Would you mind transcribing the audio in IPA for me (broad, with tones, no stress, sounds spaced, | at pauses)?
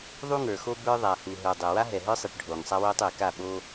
ðˤ u˦ ŋ ə˞˨ x o˦ b ə˞˦ ðˤ a˨ h u˨ ɦ ə˞˨ dˤ e˨ w a˦ ɦ ɛ˨ ɦ ə˞˦ sˤ e˨ ʈ ɖʱ oː˨ ŋ sˤ a˦ w oː˦ tˤ e˨ k a˦˨ ɓ o˦